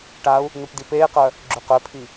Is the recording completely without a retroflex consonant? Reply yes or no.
no